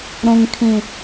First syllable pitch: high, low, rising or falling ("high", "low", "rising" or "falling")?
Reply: low